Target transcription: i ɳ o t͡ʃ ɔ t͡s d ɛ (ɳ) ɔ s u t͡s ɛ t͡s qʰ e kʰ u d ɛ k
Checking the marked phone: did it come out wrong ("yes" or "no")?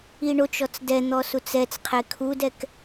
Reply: yes